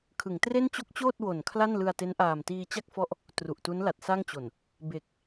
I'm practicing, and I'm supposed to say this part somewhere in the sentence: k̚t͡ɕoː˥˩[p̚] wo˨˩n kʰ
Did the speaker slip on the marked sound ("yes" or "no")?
yes